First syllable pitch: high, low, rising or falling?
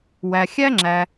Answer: low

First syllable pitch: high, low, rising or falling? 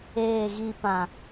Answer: falling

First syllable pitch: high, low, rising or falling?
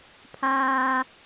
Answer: high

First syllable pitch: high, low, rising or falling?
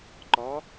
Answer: rising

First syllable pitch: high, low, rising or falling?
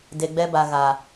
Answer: low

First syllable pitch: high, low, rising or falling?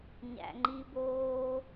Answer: low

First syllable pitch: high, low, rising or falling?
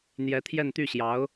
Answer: rising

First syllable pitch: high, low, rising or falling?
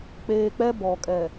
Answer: low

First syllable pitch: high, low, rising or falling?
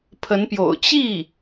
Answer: rising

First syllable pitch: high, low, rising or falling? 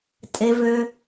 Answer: low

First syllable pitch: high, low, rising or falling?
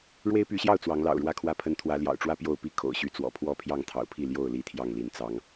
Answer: high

